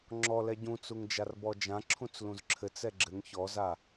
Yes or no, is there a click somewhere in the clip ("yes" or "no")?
yes